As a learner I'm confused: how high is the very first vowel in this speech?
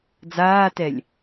low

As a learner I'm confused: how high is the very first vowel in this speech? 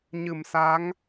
high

